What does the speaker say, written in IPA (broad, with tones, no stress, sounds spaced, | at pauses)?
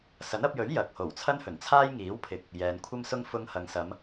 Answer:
s ɐ˨˥ n ɐ˧ p̚ j ɵ˨˥ ɥ j ɐ˨ k̚ h o˨˩ w t͡sʰ ɐ˥ n h ɵ˨˩ n t͡sʰ aː˥ j ŋ iː˨˥ w pʰ ɪ˨ k̚ | j ɛː˨ n kʷʰ ɐ˥ m s ʊ˥ ŋ f ʊ˧ ŋ h ɐ˨ ŋ s ɐ˨˧ m